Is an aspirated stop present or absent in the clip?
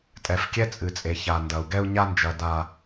absent